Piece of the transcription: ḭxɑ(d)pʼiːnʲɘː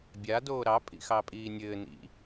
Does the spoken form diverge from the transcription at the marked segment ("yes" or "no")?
yes